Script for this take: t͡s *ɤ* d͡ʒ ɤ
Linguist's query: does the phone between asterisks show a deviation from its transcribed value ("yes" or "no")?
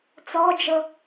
yes